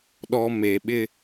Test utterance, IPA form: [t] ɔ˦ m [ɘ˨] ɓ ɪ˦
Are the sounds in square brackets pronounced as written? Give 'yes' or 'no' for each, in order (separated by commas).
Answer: no, no